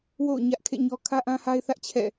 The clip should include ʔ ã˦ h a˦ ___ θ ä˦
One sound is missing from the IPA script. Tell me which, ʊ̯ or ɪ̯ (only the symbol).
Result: ɪ̯